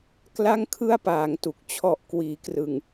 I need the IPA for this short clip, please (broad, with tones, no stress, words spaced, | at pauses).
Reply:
kla˥˩ŋkʰɯ˥˩a̯paː˩˦ŋtu˨˩k̚ t͡ɕʰɔ˨˩ʔkwiː˩˦krɯ˨˩ŋ